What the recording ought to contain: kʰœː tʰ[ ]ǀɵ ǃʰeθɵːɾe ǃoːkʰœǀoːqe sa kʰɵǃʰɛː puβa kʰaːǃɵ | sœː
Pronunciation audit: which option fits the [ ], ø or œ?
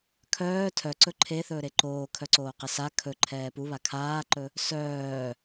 œ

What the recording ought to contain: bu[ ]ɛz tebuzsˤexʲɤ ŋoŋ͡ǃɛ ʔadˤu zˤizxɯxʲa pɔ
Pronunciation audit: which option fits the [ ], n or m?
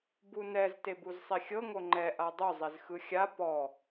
n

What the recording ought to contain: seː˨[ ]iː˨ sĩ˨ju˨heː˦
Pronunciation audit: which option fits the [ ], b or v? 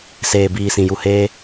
b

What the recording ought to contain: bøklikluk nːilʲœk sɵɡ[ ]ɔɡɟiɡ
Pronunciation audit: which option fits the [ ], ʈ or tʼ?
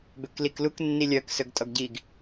tʼ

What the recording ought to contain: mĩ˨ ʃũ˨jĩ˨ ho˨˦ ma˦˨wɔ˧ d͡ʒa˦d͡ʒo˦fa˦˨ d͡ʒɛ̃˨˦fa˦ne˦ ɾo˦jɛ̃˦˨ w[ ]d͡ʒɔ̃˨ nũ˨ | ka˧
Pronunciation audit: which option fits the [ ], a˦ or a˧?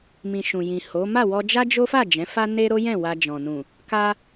a˧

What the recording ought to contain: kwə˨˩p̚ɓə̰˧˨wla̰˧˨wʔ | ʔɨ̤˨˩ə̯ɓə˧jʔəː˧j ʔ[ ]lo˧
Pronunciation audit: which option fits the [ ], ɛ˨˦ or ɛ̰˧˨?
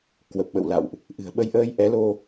ɛ˨˦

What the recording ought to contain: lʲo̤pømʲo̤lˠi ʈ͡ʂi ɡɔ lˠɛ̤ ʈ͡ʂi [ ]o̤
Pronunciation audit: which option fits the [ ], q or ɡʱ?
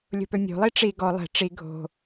ɡʱ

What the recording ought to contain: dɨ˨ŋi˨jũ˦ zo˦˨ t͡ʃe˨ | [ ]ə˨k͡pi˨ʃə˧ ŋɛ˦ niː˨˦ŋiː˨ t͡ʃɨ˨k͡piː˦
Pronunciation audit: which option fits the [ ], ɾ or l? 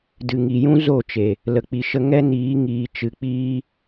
l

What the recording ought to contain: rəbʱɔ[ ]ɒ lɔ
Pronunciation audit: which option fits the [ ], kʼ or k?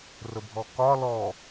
k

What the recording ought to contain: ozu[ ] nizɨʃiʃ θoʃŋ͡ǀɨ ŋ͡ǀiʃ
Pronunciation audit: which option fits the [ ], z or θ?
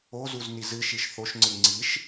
z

